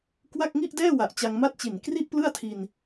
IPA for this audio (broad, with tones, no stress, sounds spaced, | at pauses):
k w a˥˩ k̚ ŋ i˥˩ ʔ d ɛː˥˩ w a˨˩ ʔ t͡ɕ a˧ ŋ m a˥˩ t̚ t͡ɕ i˨˩ n k r i˥˩ ʔ p l ɯ˥˩ a̯ tʰ i˧ n